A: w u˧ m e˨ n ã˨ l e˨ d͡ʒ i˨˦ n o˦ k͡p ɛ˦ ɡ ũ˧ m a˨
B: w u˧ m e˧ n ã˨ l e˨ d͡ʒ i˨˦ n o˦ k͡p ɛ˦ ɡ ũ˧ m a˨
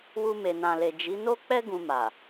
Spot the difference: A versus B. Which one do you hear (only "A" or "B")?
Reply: A